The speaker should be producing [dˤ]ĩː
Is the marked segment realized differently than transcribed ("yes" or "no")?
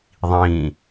yes